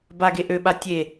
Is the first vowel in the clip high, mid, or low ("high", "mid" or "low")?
low